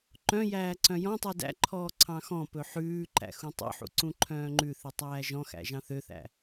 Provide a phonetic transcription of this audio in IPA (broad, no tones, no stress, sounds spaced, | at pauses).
ǃ œ̃ j æː ǀ œ̃ j ɔ̃ tˤ u d æ̰ ǃʰ ɔː ǀʰ ɑ̃ x ɔ̃ p ɵ ħ ʉː ǃ æ̰ x ũ tˤ o̰ ħ ṵ ǀ ũ ǃʰ œ̃ː ŋ͡ǃ ʉ θ i tˤ æː ʒ ɔ̃ x æ̰ ʒ ɑ̃ θ ø θ æ̰